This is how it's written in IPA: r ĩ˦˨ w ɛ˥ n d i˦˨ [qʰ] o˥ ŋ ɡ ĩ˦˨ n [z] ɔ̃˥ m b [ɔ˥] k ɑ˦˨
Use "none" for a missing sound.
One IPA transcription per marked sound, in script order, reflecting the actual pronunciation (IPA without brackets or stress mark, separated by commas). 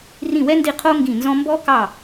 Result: qʰ, z, ɔ˥